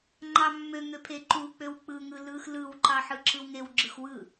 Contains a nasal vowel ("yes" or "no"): no